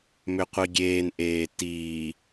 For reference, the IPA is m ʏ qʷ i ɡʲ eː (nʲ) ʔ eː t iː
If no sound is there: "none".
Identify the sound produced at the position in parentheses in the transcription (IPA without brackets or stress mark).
n